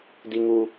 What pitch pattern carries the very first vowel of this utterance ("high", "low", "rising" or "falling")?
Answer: high